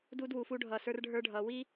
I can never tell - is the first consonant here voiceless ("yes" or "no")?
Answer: no